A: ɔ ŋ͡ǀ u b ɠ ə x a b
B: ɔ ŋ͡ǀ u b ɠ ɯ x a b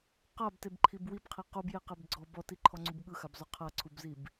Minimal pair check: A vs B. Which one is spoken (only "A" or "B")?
B